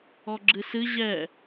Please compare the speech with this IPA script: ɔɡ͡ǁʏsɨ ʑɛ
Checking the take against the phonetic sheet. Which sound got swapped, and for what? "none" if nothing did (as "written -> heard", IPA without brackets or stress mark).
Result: ʏ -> ɨ